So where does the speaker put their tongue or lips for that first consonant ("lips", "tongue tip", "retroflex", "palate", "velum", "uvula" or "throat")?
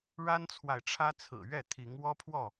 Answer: retroflex